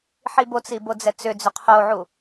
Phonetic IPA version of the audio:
ħ i b o t͡s i b o d͡z ɛ t͡s ʏ d͡z ʏ qʰ o ʕ u

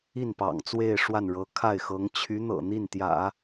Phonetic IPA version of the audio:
i˥˩ n p ɑ̰˨˩ ŋ t͡s w e˥˧ ɪ̯ ʂ w a˥˩ n ɻ ɤ˧˥ kʰ a˥˩ ɪ̯ x ɤ˧˥ ŋ t͡ɕʰ y˧˥ n̪ ɤ̰˨˩ n̪ i˥˩ n t̪ j ä̰˨˩˦

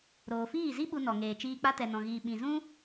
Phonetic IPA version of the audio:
ɾ oː˨ f iː˦˨ z i˦ ɓ u˧ n ɔ˨ ŋ eː˨ t͡ʃ iː˧ k͡p a˧ t ɛ˨ n ɔ̃˨ ɣ iː˨ ɓ ĩ˨ z ũ˦

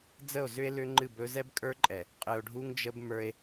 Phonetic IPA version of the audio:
d͡z ə˦˨ o̯ z ʏ˦ e̯ l ʏ˦ ŋ͡ǃ ɨ˦˨ b ɵ˦ z ɛ˦ b kʼ ə˞˦ ǃʼ ɛ˨ | qʼ ɨ˨ o̯ ɖʱ u˦ ŋ d͡ʒ ə˦ b m ə˞˦ e̯

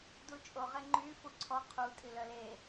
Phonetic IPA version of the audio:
d u t͡ʃʼ o ʁ e ŋ͡ǃ y f u ǀʰ ɔ qʰ u tʼ i l œ l e

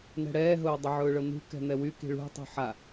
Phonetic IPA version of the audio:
n ɛ̤ ɽ ɛː ɦ ʊː dˤ ʊ ʕ ʊː ɭ ɤ n̪ ṳ k ɛ̤ n̪ ɛ w y k i̤ ɭ ṳ tˤ ṳ ħ a

